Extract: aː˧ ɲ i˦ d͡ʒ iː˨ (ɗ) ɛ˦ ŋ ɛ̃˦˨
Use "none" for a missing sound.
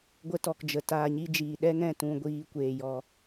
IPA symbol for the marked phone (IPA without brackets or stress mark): ɗ